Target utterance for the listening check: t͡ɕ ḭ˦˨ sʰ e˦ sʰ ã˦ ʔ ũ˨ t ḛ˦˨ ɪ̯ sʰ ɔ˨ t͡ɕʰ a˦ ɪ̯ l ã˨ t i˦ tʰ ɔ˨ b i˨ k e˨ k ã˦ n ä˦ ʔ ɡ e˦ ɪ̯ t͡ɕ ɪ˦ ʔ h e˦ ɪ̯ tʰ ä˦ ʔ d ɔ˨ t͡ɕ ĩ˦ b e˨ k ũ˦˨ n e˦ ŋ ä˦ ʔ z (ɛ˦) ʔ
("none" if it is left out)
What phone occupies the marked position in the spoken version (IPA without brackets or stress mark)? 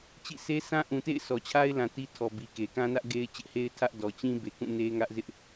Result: ɪ˦